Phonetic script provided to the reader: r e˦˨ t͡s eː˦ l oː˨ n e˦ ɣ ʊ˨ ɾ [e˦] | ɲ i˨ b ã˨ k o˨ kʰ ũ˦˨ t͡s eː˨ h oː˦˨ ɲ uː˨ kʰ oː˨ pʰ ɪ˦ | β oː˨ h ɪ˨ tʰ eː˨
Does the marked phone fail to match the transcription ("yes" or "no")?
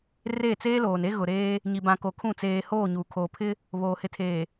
yes